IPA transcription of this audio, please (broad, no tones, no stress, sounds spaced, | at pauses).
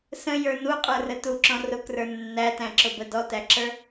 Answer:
s ə̃ j ə˞ n u qʼ ə˞ r ə t u ǁ ɔ̃ r ʊ k r ə˞ nː æ t æ̃ ǁ ʊ b ə d ɔ t æ ǁ ə˞